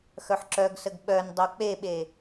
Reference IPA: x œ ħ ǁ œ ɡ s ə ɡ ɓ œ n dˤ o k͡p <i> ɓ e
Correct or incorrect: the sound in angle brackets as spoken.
incorrect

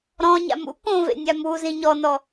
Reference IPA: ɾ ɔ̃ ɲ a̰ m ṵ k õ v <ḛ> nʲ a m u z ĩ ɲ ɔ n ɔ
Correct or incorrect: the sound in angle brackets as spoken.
correct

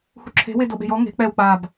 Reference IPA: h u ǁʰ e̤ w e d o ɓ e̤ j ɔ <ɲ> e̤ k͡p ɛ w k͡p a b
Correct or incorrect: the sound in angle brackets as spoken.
incorrect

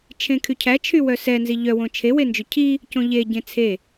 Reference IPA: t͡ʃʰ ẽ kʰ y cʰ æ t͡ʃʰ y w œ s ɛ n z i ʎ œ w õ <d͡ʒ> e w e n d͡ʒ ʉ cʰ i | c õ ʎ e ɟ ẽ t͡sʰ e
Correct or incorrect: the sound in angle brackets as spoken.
incorrect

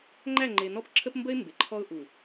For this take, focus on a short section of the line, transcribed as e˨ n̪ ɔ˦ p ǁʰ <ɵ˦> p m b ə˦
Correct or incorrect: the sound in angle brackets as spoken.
incorrect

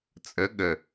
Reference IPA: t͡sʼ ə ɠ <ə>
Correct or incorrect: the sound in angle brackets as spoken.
correct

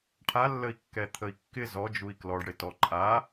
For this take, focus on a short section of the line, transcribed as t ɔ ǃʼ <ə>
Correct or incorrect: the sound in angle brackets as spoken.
incorrect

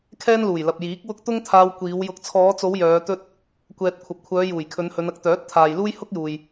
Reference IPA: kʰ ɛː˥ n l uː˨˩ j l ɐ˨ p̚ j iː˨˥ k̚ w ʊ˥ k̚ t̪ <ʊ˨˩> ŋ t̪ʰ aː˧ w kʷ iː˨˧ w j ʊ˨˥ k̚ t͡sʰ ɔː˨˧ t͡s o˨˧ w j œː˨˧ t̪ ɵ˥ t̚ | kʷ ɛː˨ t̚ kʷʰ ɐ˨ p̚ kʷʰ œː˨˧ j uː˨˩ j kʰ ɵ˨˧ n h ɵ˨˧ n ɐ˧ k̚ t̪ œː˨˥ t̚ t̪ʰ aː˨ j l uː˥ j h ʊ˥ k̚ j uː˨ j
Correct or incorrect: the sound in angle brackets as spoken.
incorrect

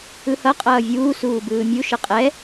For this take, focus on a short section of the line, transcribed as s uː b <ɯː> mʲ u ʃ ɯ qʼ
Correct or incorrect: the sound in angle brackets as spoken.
correct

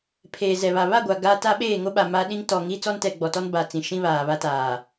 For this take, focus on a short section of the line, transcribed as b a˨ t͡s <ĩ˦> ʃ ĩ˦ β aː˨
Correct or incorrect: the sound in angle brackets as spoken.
incorrect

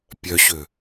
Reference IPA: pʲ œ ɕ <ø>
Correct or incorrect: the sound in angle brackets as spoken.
correct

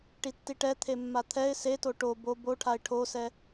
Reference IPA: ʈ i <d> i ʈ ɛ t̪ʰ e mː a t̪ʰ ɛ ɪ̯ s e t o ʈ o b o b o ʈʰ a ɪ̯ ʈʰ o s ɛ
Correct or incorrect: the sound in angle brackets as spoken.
incorrect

